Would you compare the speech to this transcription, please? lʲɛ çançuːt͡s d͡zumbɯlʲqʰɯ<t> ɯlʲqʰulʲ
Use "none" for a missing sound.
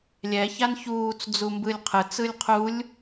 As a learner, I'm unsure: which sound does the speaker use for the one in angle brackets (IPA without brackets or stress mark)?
t͡s